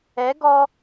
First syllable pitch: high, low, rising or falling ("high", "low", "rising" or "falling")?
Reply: rising